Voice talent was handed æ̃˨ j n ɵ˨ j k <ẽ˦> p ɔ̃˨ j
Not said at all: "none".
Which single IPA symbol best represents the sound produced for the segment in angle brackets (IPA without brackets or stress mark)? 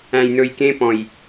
ẽ˦